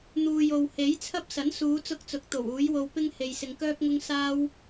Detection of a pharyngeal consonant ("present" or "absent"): absent